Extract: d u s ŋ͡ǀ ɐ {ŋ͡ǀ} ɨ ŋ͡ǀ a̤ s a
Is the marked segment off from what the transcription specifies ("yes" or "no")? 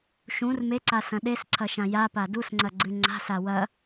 yes